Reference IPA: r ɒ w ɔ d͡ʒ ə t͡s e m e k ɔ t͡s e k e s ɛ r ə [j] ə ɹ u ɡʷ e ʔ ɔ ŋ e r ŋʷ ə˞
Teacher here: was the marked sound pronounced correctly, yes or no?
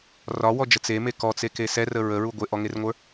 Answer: no